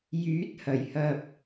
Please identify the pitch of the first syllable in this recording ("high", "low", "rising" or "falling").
rising